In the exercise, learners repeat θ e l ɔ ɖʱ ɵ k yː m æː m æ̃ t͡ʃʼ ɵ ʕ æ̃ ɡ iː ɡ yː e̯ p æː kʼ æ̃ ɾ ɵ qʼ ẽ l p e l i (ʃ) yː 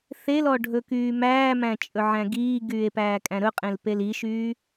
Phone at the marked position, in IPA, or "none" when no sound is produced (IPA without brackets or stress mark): ʃ